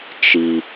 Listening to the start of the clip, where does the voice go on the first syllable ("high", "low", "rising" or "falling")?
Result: high